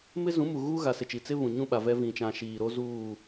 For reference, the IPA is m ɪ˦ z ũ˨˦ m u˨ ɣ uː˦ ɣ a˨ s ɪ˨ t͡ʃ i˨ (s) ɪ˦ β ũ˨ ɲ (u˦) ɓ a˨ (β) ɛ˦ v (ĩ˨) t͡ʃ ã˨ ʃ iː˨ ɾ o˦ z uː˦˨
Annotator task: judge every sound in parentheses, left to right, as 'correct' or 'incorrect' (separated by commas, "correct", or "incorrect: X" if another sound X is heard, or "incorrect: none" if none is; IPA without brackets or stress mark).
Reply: incorrect: t͡s, incorrect: ũ˦, incorrect: v, correct